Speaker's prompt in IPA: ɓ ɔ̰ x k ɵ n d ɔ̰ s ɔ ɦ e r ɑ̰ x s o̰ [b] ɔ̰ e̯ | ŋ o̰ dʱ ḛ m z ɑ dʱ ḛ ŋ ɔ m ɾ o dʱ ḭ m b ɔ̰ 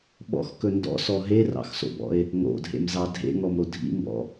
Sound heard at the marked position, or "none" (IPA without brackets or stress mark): b